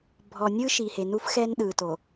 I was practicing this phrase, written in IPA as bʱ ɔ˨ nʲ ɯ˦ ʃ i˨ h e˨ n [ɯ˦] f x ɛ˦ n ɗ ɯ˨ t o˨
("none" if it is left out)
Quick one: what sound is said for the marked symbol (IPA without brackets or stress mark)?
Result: u˦